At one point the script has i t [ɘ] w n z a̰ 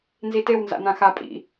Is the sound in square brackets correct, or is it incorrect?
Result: incorrect: e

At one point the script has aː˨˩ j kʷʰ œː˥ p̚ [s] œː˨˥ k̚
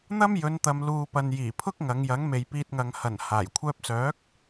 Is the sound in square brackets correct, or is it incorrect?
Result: correct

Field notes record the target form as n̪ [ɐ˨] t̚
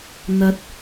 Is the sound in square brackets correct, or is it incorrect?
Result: correct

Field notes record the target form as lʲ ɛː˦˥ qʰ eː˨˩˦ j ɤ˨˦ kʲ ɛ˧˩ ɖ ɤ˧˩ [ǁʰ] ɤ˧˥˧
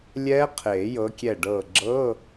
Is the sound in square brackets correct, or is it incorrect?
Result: incorrect: ɡ͡ǁ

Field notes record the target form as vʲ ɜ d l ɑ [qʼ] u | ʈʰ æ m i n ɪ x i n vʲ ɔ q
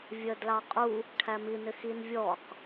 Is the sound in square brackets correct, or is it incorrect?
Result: correct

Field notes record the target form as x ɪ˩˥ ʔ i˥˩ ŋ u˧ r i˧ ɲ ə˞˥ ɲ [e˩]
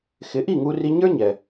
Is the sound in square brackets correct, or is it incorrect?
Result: incorrect: ɛ˩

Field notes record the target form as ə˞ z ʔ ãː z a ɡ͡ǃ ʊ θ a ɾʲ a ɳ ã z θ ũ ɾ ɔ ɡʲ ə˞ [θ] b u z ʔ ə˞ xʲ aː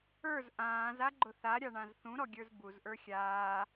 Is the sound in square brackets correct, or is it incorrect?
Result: incorrect: z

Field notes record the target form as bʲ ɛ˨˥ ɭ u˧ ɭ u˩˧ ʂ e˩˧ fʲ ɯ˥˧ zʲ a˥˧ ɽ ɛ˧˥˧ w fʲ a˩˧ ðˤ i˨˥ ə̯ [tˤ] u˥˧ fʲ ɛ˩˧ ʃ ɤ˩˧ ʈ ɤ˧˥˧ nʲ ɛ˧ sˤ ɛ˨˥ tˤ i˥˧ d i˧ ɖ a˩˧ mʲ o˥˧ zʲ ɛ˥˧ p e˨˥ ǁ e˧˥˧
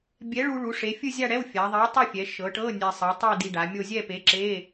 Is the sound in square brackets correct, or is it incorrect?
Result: correct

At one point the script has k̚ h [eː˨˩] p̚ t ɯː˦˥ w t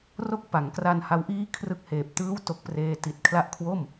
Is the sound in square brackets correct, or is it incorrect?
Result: correct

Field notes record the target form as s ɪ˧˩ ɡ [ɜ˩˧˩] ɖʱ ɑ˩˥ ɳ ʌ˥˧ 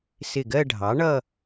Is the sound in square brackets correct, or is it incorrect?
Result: incorrect: ɜ˥˧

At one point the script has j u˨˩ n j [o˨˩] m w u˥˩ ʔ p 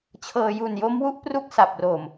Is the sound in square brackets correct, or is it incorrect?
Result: incorrect: o˦˥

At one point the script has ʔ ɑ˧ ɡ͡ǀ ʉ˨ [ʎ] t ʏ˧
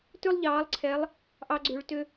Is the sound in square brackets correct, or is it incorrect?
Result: incorrect: ɭ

